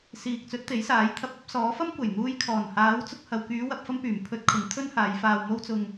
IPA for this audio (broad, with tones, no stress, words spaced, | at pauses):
siː˨k̚t͡sɵ˨˥t̚ t̪e˨˥jsaː˨˥jt̪ʰɐ˧p̚ ɐ˨˥p̚sɔː˨˥fɐ˥mkʷɐ˨˩j n̪uː˧j kʰɔː˨˩nhaː˨˥wt͡sʊ˧k̚ hɐ˨wkyː˨˧ wɐ˨p̚fɐ˧m pyː˨˩mpʰɵ˧t̚ kʰʊ˨˥ŋt̪ʰɵ˥nhaː˨˧j faː˨wmo˧wt͡sʊ˨ŋ